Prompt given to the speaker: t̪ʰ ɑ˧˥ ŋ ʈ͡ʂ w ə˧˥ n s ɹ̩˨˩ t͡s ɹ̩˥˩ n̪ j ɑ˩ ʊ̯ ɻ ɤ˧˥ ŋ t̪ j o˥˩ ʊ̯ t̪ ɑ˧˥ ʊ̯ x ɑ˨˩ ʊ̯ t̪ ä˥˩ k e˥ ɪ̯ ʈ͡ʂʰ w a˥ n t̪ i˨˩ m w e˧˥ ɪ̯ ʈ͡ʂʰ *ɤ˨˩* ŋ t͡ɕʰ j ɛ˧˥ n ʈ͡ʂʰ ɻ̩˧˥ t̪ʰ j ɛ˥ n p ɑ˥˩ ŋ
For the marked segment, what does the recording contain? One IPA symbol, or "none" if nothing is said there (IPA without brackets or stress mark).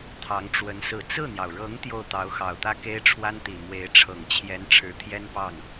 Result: ɤ˨˩